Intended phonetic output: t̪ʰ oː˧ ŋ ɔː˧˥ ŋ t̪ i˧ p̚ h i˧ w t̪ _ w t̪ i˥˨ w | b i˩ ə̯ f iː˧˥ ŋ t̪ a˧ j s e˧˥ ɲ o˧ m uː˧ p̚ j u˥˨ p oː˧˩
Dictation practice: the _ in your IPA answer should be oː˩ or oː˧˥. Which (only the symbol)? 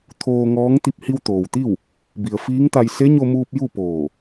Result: oː˩